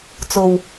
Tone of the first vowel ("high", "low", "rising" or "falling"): low